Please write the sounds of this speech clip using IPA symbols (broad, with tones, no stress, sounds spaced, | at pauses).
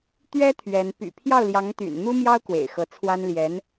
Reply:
t̪ ɥ ɛ˥ t̪ʰ ɥ ɛ˧˥ n p y̰˨˩ pʰ j ɑ˥˩ ʊ̯ l j ɑ˧˥ ŋ t̪ y̰˨˩ n n̪ u˥ m j ɑ˥ ʊ̯ k w ḛ˨˩ ɪ̯ x ɤ˧˥ t͡sʰ w a˥ n l j ɛ˧˥ n